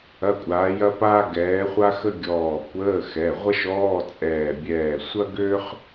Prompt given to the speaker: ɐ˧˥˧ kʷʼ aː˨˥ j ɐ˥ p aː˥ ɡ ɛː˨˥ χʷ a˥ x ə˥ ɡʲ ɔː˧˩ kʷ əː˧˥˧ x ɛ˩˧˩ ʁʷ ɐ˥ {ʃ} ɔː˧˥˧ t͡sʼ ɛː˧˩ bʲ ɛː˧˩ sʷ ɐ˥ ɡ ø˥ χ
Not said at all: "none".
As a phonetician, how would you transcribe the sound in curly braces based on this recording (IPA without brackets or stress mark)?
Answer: ʃ